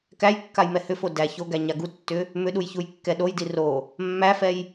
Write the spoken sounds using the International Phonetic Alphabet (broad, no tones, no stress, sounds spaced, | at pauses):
k æ j kː a j m ɛ h ʏ f o d æ ç o ɡ æ ɲ a ɡ u tː ʏ | m ʏ ɗ u j ç u j kː ɛ ɗ o j d i r o | mː æ f ɛ j